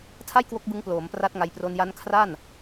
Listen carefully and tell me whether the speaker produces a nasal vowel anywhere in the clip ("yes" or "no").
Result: no